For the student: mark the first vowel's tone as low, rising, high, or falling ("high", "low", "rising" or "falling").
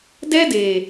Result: high